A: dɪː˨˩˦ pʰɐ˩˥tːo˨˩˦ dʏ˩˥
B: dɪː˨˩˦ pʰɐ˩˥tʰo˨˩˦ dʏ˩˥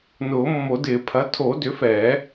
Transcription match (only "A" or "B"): B